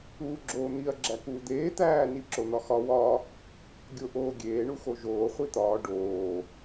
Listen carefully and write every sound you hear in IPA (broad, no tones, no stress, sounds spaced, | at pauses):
uː ɡ͡ǁ oː n̪ i ɐ̯ ɡ͡ǁ æ k uː d̪ eː t̪ æː n i ǁ o n̪ ɒ x ɒ w ɒ | ɡʲ o ʔ oː ɡʲ eː ɳ u x o ʒ oː χʷ i t̪ ɒː ɖ oː